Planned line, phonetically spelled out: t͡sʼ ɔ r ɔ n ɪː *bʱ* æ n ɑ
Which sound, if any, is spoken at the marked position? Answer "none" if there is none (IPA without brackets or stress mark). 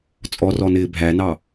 bʱ